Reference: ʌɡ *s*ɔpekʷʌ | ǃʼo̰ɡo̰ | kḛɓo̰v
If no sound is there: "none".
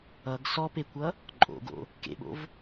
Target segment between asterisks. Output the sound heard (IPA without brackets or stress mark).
s